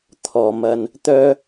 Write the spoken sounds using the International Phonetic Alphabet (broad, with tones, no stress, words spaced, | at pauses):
t̪ʰɔː˨mɐ˧n | t̪œː˥